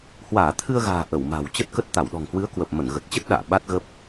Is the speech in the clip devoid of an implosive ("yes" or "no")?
no